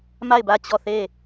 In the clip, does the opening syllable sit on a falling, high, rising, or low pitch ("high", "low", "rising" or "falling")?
falling